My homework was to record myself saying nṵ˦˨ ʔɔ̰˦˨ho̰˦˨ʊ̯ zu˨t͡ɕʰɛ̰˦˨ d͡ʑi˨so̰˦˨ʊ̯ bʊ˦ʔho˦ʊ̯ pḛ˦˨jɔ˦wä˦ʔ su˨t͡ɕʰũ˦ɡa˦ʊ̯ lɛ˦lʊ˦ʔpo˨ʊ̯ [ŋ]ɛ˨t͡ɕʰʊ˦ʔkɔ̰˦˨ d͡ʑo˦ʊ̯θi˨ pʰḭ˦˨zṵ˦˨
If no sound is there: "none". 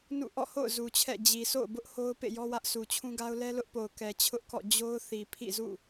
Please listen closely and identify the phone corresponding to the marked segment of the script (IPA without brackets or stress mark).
k